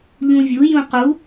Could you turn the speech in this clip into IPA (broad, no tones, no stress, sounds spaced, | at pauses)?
ʎ ũ vʲ u j ũ q u